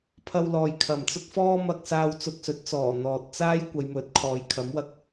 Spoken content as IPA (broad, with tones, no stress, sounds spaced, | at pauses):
pʰ ɐ˧ w l ɔː˨ j kʰ ɐ˨˩ m t͡s ʊ˥ k̚ f ɔː˥ m ɐ˧ k̚ s aː˧ w t͡s ʊ˧ k̚ s ɵ˨˥ t̚ t͡s ɔː˨˩ n̪ ɔː˨ t̚ t͡s aː˥ j kʷ ɐ˨˧ j m ɵ˨˥ t̚ kʰ ɔː˨˧ j kʰ ɐ˨˥ m w ɐ˧ k̚